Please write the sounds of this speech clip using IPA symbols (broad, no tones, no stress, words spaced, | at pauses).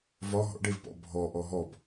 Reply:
vɒ ɦɔ̰ɖevpɔ̰ bʱɔʔɔ ɦɔb